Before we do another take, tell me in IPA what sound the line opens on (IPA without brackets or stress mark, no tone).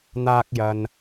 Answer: n̪